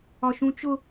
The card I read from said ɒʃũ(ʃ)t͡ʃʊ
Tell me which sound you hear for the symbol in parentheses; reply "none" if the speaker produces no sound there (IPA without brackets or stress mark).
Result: none